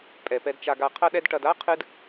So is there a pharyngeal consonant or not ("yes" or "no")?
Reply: no